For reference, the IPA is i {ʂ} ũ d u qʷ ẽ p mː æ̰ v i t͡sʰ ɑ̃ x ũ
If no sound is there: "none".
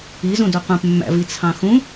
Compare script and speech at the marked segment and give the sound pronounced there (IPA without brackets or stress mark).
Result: z